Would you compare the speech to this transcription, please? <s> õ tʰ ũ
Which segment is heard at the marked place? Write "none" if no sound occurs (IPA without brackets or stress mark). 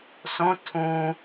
s